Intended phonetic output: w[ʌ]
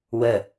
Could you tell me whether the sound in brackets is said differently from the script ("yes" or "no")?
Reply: yes